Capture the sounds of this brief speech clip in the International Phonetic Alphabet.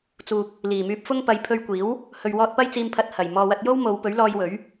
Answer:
t͡s uː˨ k̚ | l iː˨˩ m yː˧ p̚ f ʊ˥ ŋ p ɐ˨˥ j pʰ ɵ˧ ɥ kʷ iː˨˥ w | h ɵ˨ ɥ w ɔː˧ t̚ p ɐ˥ j t͡s iː˧ m pʰ ɐ˧ t̚ h ɐ˨˩ j m ɔː˨ w ɐ˧ t̚ j o˥ w m o˨˧ w p ɵ˨˥ ɥ l ɔː˧ j w ɵ˨˥ ɥ

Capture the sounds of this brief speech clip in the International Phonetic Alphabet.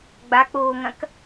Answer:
ɡ͡b a k͡p oː ŋ ɐ̃ k

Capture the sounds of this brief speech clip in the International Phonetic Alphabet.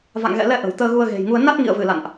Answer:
v a̰˧˨ ŋ ɣ ɛ̰˧˨ l ɛ˧ ʔ ə̤˨˩ w t̪ əː˧ ɣ u˧ ə̯ ɣ e̤˨˩ j ŋ u˧ ə̯ n a˦˥ t̚ ŋ ḭ˧˨ ə̯ v ɨ˧˩ l a̰˧˨ n ʔ

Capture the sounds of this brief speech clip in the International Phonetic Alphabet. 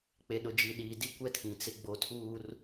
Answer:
k͡p e˨ ɗ ʊ˨ d͡ʒ i˨ ɗ iː˨ d i˦ kʷ ɛ˦ tʰ ĩ˨ t͡s ɪ˦ ɡ͡b o˦ tʰ uː˦ r

